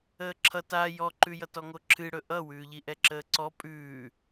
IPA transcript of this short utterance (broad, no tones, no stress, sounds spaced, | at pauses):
əː ǁʰ ʌ t a j ɔ ǃ ʉ j ʌ t ɔ ŋ o ǁʰ ɨ ɽ ɵ ʔ ʌ w ʉː ʎ i ʔ ɛ ǁ əː ǀ ɔ pʼ ʉː